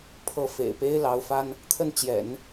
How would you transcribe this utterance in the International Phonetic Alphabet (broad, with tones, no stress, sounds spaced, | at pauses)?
pʰ ɤ˥˩ f ḛ˨˩ ɪ̯ p e˥ ɪ̯ l ɑ˧˥ ʊ̯ f a˥ n | t̪ʰ ə˥˩ n t͡ɕ j ɛ̰˨˩˦ n